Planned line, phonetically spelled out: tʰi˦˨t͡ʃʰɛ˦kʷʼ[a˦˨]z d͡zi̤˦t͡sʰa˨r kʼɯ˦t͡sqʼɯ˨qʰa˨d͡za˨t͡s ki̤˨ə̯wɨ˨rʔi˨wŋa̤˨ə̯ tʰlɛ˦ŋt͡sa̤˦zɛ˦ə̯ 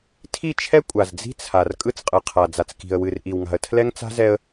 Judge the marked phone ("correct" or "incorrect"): incorrect